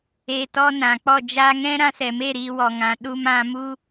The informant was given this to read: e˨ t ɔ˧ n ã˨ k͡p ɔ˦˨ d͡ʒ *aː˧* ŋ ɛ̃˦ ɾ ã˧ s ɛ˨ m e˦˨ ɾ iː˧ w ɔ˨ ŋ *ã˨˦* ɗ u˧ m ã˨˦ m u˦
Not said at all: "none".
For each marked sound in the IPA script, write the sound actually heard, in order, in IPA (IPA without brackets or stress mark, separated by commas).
aː˧, ã˨˦